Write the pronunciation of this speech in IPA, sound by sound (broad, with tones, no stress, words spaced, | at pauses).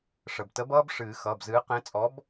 ʂə˩btə˨˥bʌː˦b ʂɨː˨˩˦xʌː˩˧˩bzɨː˨˥ qẽ˨˥t͡sʼɔ˨˥b